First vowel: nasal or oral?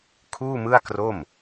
oral